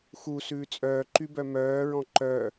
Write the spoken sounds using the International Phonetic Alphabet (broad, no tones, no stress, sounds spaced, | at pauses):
x u s ʉː t͡sʼ œː ǃ y b œ m œː ɹ ɔ̃ ǃ œ